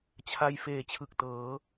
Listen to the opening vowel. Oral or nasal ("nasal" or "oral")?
oral